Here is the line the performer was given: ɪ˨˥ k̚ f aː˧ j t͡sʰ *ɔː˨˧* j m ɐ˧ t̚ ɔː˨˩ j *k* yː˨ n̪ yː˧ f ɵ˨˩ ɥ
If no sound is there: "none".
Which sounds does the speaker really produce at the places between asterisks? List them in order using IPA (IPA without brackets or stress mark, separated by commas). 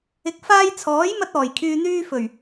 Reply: ɔː˨˥, kʰ